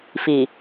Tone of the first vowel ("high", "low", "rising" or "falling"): low